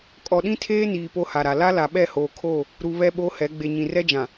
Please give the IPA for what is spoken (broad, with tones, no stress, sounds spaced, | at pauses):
kʼ ɔ˨ ɗ ĩ˦ tʰ eː˦ n iː˨ p o˦ h a˨ ɾ a˨ l a˦ l a˨ ɓ ɛ˦˨ h oː˨ kʰ o˦˨ | ɾ u˨ β ɛ˦ ɓ o˦ h ɛ˨˦ ɡ͡b e˨ ɲ ĩ˨ r ɛ˦ d͡ʒ ã˨